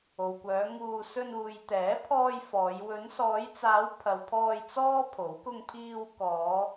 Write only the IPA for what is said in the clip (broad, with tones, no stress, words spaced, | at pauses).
o˨wkʷœː˨˧ŋuː˧ sɵ˧nuː˨jt̪ɛː˨˥pʰɔː˧j fɔː˨˧j wɵ˨˧nsɔː˨˧jt͡saː˨˧w pʰɐ˨wpʰɔː˧j t͡sɔː˥ pʰo˨˥w kʊ˧ŋpʰiː˧w kɔː˨˧